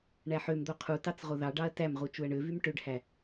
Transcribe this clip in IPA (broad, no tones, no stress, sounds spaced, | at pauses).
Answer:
ɳ æ ħ ø m d̪ o qʰ u t ɑ t͡s ʁ o ð ɑ ɖ ɑ ɐ̯ t æ m ʁ u t͡ʃ u ɐ̯ ɳ ø v y m ʈ ø ɖ h æ